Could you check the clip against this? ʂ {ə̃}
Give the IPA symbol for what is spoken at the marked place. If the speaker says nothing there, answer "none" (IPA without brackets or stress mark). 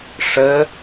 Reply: ə